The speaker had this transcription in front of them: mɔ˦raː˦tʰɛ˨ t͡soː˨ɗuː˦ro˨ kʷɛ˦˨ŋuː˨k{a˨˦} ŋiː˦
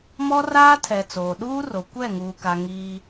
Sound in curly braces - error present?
yes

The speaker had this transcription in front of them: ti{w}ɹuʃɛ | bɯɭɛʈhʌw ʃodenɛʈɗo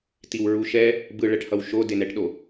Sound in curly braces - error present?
no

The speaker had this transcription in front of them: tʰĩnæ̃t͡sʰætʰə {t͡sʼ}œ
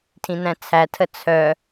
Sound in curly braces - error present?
yes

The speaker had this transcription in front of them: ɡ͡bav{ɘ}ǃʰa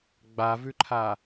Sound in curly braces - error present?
yes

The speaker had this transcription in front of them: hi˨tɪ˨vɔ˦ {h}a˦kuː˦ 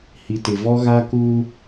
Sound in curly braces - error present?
yes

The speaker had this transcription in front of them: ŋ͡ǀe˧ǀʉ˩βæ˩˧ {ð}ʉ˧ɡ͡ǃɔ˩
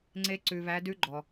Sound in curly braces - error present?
yes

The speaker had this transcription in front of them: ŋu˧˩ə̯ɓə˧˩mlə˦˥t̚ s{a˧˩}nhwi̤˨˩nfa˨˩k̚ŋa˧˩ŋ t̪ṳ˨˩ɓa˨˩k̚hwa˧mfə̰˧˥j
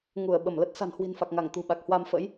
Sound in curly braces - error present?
yes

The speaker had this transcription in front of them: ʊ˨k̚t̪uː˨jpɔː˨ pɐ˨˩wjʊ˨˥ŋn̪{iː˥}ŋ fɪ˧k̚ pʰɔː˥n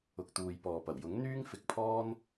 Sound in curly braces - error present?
yes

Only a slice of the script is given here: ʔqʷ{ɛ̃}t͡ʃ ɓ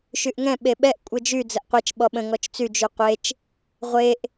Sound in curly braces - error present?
yes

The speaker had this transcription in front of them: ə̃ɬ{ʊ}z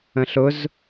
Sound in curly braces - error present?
no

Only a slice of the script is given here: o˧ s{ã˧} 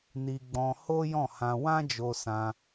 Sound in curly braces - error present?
no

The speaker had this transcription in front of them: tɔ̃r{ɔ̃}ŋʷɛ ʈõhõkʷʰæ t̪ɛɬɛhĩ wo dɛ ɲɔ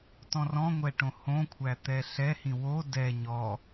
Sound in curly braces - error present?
no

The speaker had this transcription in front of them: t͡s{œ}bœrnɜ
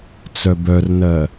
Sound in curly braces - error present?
no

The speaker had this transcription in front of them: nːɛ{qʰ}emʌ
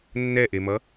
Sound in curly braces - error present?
yes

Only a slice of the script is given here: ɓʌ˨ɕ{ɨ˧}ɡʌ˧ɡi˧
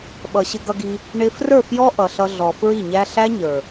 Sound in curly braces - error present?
yes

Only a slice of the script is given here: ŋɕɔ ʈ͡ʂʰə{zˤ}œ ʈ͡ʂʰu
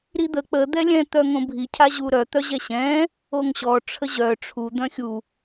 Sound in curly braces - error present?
yes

